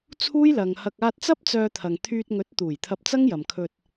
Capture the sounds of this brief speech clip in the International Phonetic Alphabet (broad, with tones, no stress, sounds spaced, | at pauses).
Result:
t͡sʰ uː˥ j l ɐ˨ ŋ h ɐ˧ k̚ aː˧ t̚ t͡s ɐ˥ p̚ t͡s œː˧ t̪ʰ ɐ˨ ŋ t̪ʰ yː˧ t̚ ŋ ɵ˨˥ t̚ t̪ uː˨˩ j t̪ʰ ɐ˧ p̚ t͡s ɐ˥ ŋ j ɐ˨ m kʰ ɵ˧ t̚